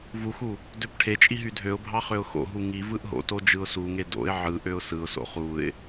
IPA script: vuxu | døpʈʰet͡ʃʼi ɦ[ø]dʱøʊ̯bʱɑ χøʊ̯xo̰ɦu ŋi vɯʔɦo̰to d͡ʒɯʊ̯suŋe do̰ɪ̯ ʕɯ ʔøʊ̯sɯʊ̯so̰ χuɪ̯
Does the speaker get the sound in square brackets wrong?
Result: yes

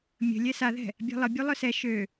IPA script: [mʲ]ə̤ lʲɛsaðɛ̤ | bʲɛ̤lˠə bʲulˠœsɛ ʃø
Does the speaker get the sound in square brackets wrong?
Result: no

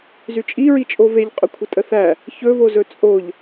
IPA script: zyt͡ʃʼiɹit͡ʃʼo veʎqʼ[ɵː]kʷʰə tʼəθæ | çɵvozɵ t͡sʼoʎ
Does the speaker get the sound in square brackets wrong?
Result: yes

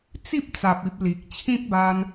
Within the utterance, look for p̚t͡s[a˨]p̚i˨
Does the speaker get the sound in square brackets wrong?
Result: no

